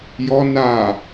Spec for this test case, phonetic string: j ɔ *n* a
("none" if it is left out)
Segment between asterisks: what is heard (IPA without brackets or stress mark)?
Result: n